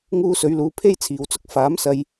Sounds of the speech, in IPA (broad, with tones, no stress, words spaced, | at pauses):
ŋuː˧sɵ˨˧ɥluː˨˧ pʰe˥jt͡sʰiː˨wt͡sʊ˥k̚ faː˨˥msɐ˧j